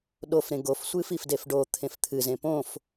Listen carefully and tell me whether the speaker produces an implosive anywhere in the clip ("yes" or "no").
yes